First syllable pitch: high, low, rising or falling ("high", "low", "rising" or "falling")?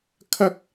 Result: high